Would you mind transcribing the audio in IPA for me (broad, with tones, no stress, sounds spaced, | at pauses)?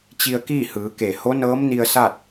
t͡ɕ i˧ ə̯ k iː˥˨ h ɯː˩˧ k e˧˩ h o˧˥ n ɤː˧˥ m n i˧ ə̯ s a˥˨ t̚